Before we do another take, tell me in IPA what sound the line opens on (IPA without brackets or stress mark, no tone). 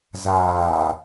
z